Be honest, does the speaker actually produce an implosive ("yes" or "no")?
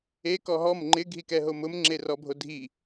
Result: no